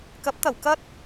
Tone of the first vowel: rising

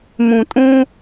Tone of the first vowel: low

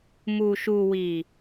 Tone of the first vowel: low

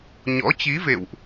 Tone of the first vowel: rising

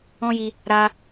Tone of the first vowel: high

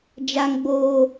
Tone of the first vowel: low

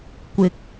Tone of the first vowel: rising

